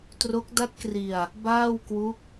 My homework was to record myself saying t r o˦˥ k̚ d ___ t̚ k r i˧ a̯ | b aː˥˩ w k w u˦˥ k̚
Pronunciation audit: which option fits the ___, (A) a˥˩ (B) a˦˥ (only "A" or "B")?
B